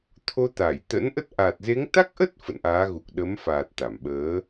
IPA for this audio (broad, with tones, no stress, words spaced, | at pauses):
t̪ʰo˧t̪a˧˩j t̪ə̰˧˥nʔə˦˥t̚ ʔa˨˩t̚ze˨˦ŋ t̪a˦˥k̚ʔə˦˥t̚ fə̰˧˨nʔaː˨˦ɣu˨˩k̚ ɗə˨˦mfaː˨˩t̚ t̪a˧˩mɓəː˨˦